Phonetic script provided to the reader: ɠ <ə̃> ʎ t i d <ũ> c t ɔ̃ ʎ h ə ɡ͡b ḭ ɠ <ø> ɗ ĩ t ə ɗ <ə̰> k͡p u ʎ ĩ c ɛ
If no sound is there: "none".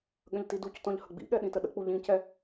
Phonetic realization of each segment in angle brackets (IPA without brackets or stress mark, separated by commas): ə̃, u, ɛ, ə̰